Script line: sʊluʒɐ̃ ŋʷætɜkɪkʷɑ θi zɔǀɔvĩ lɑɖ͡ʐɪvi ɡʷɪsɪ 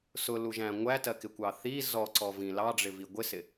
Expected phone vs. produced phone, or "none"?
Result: ɐ̃ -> æ̃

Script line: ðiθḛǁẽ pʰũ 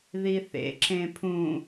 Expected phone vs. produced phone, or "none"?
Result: none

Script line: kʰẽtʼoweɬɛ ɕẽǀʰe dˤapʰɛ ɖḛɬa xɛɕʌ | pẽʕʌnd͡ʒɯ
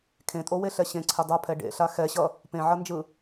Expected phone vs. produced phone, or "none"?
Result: none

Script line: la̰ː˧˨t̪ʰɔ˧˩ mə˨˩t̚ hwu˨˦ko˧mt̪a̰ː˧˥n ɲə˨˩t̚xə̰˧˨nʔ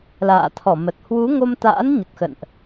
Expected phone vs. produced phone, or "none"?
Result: k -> ŋ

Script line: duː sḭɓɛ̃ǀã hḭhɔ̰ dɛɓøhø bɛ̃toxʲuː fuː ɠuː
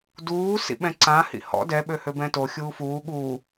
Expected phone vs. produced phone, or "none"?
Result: none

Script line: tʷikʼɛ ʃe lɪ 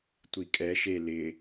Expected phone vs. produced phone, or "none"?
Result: none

